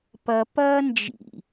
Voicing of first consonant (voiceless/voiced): voiceless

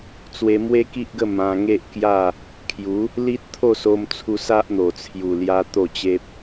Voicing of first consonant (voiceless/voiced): voiceless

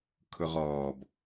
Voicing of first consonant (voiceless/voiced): voiceless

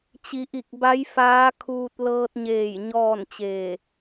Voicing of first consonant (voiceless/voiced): voiceless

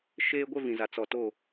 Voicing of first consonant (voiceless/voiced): voiceless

